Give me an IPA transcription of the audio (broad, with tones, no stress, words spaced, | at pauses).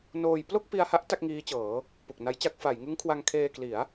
noː˧j plo˥˩k̚pi˧a̯ha˦˥ʔ ta˥˩k̚ŋiː˦˥t͡ɕɤː˩˦ | pu˨˩k̚na˦˥jt͡ɕa˥˩k̚ fa˩˦jŋɯ˦˥ŋ kʰwa˧ŋkʰeː˧kli˩˦a̯